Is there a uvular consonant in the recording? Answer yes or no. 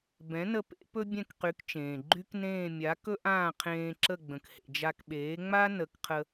yes